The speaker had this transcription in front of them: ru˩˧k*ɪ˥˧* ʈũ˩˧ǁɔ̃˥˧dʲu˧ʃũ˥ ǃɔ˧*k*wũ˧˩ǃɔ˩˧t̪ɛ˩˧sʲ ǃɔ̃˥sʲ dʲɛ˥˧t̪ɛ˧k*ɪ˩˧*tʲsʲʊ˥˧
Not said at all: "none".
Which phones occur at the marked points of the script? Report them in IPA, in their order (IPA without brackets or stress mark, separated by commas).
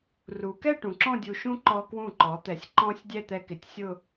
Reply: ɛ˥˧, k, ɪ˩˧